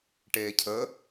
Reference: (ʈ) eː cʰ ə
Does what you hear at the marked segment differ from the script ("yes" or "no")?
no